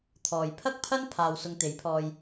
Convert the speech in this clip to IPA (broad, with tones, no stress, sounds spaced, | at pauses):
t̪ʰ ɔː˨ j pʰ ɐ˥ k̚ pʰ ɐ˥ n pʰ aː˧ w s ʊ˧ ŋ t̪ e˨˥ j pʰ ɔː˧ j